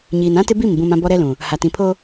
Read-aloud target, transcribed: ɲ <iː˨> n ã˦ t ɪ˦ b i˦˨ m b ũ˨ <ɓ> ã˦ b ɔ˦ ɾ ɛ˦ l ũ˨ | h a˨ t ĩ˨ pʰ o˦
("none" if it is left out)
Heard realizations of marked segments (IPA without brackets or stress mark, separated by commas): iː˨, m